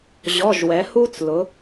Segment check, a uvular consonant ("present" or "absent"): absent